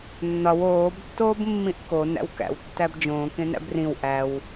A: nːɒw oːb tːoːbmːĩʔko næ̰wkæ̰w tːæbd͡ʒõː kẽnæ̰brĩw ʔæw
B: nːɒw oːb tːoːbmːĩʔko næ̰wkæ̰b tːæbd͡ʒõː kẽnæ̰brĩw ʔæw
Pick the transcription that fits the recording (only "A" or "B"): A